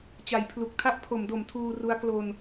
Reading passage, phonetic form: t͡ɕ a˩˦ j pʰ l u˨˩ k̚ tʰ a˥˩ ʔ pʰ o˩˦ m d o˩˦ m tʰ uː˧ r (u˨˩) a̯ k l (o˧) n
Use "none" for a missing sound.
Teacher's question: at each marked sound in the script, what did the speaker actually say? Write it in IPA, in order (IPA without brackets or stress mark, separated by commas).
u˦˥, o˧